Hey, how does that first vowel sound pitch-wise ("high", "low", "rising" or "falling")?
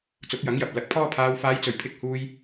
rising